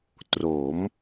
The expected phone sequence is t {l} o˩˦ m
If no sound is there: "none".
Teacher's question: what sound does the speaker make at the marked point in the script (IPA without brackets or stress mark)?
r